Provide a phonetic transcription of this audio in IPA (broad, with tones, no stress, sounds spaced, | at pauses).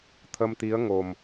t̪ʰ ə˧ m t̪ i˧˥ ə̯ ŋ o˨˩ m